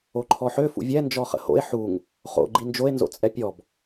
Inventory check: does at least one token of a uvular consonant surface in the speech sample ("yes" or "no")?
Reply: yes